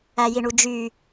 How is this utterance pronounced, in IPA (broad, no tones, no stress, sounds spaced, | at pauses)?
æ j i ɳ u d͡ʒ y